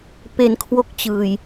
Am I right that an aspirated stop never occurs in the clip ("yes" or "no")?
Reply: no